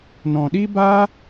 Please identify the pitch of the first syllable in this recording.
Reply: low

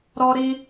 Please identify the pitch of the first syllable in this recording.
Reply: high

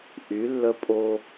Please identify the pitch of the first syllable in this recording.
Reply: rising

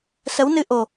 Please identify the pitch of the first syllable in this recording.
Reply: rising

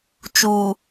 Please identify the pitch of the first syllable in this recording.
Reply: low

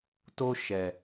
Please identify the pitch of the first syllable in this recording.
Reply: high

